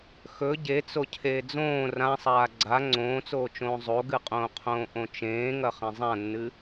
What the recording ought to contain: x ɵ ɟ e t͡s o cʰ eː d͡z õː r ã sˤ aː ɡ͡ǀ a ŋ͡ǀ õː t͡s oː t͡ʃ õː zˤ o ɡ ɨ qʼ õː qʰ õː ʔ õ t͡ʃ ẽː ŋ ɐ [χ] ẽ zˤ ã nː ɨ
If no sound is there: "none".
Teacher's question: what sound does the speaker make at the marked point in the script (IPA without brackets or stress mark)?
χ